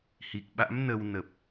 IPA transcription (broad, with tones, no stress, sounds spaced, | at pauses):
h i˨˩ k̚ ɓ a̰˧˥ m n ə˧ w n ə˨˩ p̚